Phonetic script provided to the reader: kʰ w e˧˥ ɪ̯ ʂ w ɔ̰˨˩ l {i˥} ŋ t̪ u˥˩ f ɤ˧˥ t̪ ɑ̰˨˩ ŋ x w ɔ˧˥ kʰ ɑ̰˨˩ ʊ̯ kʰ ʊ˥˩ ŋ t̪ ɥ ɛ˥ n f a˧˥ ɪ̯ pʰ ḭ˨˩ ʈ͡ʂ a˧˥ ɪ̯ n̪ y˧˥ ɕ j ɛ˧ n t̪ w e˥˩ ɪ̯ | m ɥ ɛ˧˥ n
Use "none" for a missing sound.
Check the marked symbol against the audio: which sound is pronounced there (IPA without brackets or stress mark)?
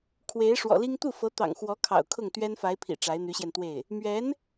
i˥